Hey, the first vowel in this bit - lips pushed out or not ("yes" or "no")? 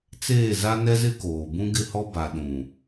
no